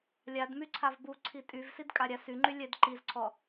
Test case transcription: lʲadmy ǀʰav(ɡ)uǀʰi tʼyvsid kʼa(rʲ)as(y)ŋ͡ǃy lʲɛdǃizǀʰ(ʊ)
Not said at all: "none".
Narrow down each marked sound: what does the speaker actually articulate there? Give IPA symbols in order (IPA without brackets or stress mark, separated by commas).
b, ɾʲ, y, ɔ